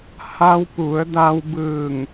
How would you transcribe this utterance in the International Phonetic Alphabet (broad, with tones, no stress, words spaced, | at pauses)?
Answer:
ha˧wpu˩˧ə̯da˧w bɯː˧˩ŋ